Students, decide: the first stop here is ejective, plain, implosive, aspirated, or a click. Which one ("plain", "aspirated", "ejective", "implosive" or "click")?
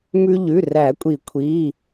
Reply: ejective